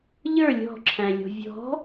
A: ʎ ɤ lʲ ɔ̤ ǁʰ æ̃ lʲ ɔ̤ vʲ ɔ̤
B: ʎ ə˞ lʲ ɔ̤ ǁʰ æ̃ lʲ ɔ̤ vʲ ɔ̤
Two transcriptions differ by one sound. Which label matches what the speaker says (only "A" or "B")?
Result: B